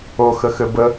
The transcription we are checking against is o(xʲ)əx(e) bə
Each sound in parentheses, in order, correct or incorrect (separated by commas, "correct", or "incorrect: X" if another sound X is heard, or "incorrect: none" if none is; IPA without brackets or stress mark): incorrect: x, incorrect: ɘ